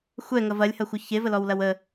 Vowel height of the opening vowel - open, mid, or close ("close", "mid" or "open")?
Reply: mid